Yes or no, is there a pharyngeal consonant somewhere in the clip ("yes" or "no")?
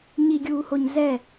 no